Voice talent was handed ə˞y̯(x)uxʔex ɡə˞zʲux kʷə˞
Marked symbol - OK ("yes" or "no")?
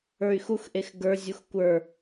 yes